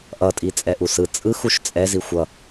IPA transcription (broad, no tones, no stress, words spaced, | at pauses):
ʔʌtʼi t͡sʼɛʔusɯ t͡sʼɯx uʃt͡sʼɛzi xʷʌ